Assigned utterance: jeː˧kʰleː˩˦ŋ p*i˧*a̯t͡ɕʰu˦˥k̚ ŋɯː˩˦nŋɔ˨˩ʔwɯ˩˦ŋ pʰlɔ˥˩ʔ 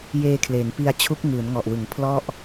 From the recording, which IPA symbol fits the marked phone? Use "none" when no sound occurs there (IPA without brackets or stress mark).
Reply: i˧